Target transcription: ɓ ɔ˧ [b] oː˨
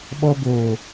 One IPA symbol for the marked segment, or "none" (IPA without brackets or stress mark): b